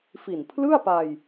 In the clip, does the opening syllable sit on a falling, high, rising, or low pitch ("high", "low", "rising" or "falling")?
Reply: low